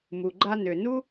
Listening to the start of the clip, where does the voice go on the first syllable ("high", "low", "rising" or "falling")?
low